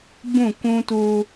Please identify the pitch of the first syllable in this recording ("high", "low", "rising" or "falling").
falling